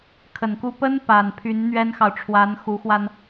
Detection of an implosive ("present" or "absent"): absent